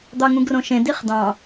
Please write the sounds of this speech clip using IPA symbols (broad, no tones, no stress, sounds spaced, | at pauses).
d̪ ɑ ŋ ũ ɡ r õ ʃ ẽ d i χ d ɑ̃